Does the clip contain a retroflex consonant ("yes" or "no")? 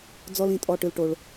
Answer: yes